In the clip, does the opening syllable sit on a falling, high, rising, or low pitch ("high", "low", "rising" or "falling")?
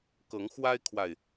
rising